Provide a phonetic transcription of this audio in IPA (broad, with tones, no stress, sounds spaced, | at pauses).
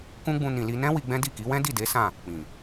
k ũ˦ ɡ͡b ũ˧ n ĩ˨ l i˧ n ɛ̃˦ w i˧ ɡ͡b ɛ̃˦ d i˦˨ k i˨˦ w ɛ̃˦ d i˦˨ d e˨˦ s ã˦˨ | k͡p ĩ˨